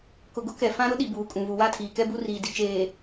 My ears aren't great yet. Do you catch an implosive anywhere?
yes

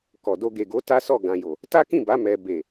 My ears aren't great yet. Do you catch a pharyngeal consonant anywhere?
no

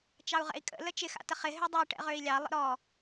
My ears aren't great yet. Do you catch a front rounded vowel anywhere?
yes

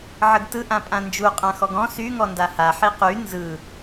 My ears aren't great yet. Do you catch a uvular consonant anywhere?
yes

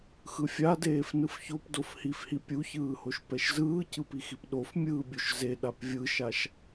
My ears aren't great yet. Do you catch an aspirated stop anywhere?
no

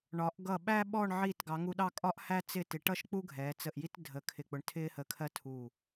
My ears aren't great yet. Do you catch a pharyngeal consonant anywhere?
yes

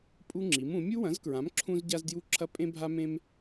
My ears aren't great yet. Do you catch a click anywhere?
yes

